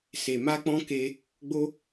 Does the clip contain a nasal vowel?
yes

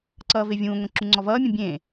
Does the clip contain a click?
yes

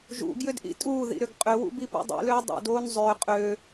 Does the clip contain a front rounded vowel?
yes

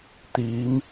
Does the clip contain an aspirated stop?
no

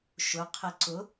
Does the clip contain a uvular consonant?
yes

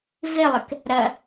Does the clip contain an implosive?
no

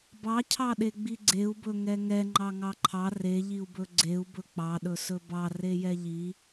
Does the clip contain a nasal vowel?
no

